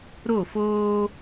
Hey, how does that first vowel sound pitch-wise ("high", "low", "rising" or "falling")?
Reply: falling